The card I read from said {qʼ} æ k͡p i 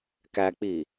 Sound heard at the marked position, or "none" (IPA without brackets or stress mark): k